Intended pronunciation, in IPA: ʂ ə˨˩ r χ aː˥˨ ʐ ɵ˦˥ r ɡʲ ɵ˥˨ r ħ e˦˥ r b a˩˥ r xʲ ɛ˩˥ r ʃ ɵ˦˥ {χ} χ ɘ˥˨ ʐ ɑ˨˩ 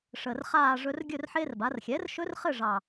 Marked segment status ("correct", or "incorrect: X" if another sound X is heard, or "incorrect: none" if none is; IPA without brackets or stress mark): incorrect: r